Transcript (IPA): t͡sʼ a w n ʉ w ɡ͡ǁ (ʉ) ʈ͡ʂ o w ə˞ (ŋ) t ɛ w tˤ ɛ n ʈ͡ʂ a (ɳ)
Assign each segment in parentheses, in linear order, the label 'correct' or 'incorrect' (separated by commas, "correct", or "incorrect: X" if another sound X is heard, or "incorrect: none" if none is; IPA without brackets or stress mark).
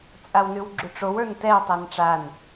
correct, incorrect: n, incorrect: n